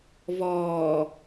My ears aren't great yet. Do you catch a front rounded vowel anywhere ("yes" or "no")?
no